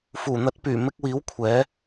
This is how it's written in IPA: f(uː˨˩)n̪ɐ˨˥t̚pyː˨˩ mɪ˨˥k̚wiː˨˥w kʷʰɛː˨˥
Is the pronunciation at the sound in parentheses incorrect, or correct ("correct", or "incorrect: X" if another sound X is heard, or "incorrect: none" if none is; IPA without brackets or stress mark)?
correct